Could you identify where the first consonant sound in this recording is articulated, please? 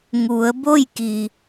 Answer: velar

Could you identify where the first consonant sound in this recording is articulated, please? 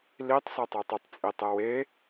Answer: alveolar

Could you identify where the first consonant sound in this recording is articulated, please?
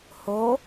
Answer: glottal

